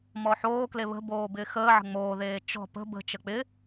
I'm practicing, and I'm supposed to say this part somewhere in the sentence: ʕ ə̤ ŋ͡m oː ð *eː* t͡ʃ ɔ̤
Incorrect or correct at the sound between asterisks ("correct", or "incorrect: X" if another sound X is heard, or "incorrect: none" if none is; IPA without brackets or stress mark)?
correct